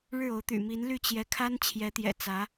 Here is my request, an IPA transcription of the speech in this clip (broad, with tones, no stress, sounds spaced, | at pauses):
ɻ ɻ̩˥˩ o˧˥ ʊ̯ t̪ y̰˨˩ m i˧˥ n l y˥˩ t͡ɕ j ɛ˧˥ kʰ a˥ n t͡ɕʰ j ɛ˧˥ t̪ j ɛ̰˨˩ t͡s ä˧˥